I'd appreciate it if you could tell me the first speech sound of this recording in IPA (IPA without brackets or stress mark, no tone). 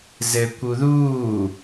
z